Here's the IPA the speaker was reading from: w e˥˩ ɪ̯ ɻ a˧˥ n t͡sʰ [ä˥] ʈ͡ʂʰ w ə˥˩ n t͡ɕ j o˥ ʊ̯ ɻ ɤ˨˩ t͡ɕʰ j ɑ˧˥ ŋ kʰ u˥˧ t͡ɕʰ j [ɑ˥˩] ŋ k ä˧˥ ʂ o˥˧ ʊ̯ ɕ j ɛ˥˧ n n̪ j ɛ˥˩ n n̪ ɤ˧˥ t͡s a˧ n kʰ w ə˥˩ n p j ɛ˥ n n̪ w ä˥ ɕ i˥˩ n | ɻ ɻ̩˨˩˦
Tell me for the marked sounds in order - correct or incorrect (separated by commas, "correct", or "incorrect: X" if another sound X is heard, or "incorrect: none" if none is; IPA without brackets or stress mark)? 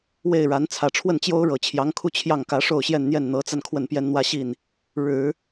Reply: incorrect: ä˨˩, correct